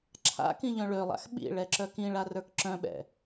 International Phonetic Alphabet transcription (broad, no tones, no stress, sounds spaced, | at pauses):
ǁʰ a̰ k ĩ ʎ œ̃ ɭ ø lˠ a̰ x ɓ ḭ ɭ ɛ ǁ œ k ĩ ɭ a r ə˞ k ǁ œ̃ ɓ ɛ̰